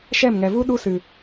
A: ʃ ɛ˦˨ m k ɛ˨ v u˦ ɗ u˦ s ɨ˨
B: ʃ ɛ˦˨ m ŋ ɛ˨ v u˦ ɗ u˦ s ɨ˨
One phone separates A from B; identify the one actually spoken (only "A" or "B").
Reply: B